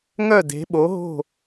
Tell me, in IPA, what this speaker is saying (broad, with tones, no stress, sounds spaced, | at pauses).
ŋ œ˥˨ d e̤˨˥ ɓ o˨˥ ɦ o̤˥˨